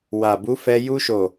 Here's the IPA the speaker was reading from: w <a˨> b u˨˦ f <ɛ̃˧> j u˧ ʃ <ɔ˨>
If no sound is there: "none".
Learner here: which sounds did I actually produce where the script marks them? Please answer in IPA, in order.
a˨, ɛ˧, o˨

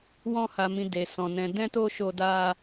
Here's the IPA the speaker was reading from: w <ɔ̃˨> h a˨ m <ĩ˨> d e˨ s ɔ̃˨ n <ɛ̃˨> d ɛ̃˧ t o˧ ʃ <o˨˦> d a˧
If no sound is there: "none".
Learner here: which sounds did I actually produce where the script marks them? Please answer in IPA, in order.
ɔ̃˧, ĩ˨, ɛ̃˨, o˧

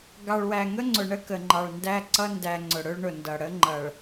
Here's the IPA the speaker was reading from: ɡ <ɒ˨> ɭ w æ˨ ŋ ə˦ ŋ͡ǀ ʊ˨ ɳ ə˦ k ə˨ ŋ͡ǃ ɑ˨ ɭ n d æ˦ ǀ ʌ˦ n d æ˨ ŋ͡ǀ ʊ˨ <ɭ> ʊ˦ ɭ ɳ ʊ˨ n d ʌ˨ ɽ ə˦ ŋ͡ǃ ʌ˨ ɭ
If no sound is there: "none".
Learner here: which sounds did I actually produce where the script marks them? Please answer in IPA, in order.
ɑ˨, ɽ

